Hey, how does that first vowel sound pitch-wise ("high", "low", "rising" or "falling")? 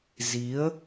rising